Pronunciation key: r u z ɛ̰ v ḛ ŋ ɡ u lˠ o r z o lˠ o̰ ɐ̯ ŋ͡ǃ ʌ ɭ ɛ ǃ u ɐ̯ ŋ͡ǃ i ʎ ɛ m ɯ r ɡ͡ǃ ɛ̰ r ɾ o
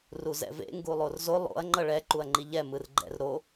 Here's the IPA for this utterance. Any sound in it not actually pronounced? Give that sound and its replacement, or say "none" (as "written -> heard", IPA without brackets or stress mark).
none